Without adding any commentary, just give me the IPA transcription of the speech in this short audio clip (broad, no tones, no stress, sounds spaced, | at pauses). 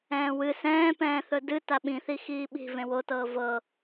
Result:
ɛ̃ː w ɨ s ɛ̃ː p ɛ̃ː θ ɵ d ɨ t a ɓ ĩ θ i x iː ɓ i̤ v ẽ w o t ɤː v ɤ